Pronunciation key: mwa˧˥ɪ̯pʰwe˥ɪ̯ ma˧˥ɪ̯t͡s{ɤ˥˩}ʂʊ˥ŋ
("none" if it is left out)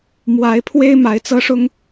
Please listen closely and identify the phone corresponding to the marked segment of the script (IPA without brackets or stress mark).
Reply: ɤ˥